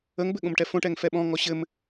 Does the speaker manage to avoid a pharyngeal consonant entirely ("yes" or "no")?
yes